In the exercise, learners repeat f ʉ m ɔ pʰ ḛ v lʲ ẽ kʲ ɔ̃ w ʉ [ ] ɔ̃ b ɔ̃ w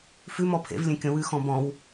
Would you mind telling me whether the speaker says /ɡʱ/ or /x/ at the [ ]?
x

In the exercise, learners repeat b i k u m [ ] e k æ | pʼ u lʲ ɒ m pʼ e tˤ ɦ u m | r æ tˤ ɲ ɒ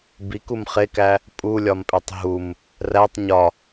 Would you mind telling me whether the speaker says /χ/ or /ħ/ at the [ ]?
χ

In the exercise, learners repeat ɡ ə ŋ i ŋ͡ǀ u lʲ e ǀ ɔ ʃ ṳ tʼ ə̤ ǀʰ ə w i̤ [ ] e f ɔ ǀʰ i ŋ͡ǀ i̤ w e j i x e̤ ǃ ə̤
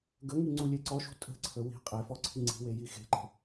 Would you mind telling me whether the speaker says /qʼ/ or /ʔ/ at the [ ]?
qʼ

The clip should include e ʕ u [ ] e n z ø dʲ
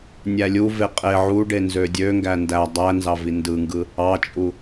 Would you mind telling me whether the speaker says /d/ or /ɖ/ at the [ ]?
ɖ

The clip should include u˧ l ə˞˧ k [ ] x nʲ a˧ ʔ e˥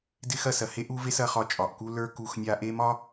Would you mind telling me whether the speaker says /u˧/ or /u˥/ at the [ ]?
u˧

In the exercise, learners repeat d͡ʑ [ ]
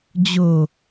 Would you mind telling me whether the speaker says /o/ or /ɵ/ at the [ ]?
o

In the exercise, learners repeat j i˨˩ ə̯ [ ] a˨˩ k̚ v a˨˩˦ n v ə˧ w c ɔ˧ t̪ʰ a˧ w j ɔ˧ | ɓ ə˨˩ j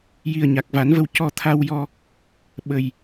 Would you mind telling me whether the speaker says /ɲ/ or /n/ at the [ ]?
ɲ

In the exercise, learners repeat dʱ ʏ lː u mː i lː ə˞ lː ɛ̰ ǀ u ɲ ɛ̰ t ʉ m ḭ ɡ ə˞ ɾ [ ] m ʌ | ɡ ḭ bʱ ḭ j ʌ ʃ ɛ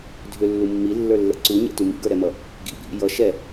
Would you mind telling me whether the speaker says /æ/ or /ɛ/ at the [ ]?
ɛ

